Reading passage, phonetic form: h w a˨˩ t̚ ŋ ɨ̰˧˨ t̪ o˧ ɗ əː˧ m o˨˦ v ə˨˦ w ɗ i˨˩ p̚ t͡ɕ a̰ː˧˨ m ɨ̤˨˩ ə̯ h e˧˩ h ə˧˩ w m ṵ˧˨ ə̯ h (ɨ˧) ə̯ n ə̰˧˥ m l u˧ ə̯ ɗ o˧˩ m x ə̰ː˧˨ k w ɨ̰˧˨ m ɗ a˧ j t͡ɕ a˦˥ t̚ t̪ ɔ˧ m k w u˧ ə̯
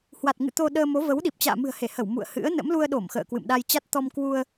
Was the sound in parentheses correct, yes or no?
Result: no